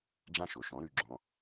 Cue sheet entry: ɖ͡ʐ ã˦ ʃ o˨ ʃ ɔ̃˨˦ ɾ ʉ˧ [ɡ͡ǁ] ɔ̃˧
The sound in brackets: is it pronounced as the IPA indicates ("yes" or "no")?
yes